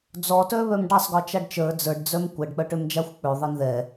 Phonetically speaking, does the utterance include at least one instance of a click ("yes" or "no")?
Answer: no